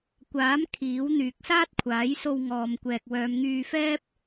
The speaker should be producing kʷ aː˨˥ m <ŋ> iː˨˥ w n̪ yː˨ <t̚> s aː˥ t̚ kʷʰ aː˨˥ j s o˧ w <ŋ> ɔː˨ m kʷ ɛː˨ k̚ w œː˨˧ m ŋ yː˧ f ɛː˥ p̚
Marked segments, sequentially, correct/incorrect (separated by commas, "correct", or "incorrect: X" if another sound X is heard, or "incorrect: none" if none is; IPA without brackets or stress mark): incorrect: kʰ, incorrect: k̚, correct